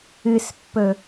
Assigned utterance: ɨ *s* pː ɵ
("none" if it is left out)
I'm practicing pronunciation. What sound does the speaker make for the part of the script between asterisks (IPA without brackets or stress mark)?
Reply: s